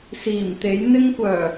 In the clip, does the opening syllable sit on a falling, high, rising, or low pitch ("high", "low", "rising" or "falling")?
low